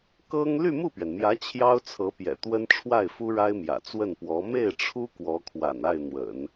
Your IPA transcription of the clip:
kɤ˥ŋ ly˥˧mu˥˩pɥɛ˩nmjä˧˥ t͡ɕʰjɑ˥ʊ̯t͡sʰɤ˧˥pjɛ̰˨˩ t̪wə˥nʈ͡ʂʰwa˥˩ɪ̯ fu˥ɻa˥ɪ̯mjä̰˨˩ t͡swə˥˩npwɔ˧˥ me˥˩ɪ̯ʈ͡ʂʰu˥ kwɔ˧˥kʰwa̰˨˩na˥˩ɪ̯n̪wə̰˨˩˦n

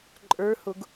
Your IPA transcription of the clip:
ǃʼə˞hʊɡ

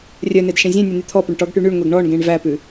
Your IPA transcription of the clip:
rʲœnedʃẽ zʲẽnʲɵn̪y t̪ʰɔpɵɳ ʈɔɡʈy ɳyɳŋʷeɡ ɳɔɳɡẽɳ væpʉ

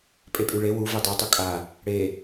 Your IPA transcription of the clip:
pʼepʼyɭe wu vedˤɛ tˤukʼa | ɽe

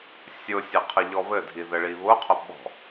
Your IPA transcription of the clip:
sʲʊsʲɘ qʰəʎɔβɘdʱi ðɘɭiβʊqʰʊ ɓɔ̤

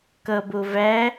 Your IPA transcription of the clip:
kʌbo væ

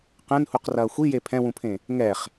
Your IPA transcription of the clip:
qɛ̃nhuqrɐː xʷije pʰɛ̃wũpʰẽ | ŋɛχ

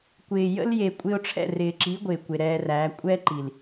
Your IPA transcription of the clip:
kʷɪː˨jə̰˦lje˨ kʷʼɪ˧ʊ̯ʈ͡ʂʰɛ̰˦˨rɪː˨ǁi˨˦ ɡʷɪː˨kʷe˨ɾɛː˧ræː˨˦ kʷʼɛ˦ǃi˨l

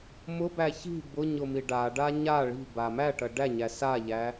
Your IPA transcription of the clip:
mʊbæ çi̤ bʊɲʊmi ɖaɖa ɲa ɭi̤ba mæʈɐ ɖæɲæ saʎæ

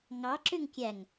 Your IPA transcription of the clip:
ŋɑ ǁøŋkʲæŋ

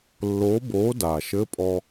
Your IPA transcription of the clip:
lːoː˨˥boː˨˥daː˩ʃ ɘ˧˥˧pʼɔ˧

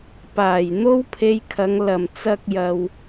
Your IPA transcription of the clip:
paː˨˩jn̪o˥wpʰe˧jkʰɐ˨˧ŋ lɐ˨˩mt͡sɐ˧k̚ jɐ˨w

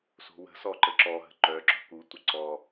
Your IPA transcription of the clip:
so̤wə̤sɔ ǃəǁɔɦə̤ ǃœǁɔ̤ kutʷə ǀɔ

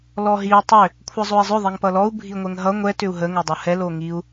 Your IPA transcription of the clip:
lɔɦiu̯ tˤʏ | kʷʰʌzˤoi̯zˤʏ ðˤiŋpʌlɔu̯ bʱiŋʷɛŋɦʌ ŋʷɛ tʏu̯ɦə ŋodˤohɛ loŋiu̯

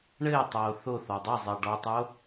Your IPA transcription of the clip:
ɳɘːtˤoː θoθɔ dˤezˤɘː ɖɔtˤo

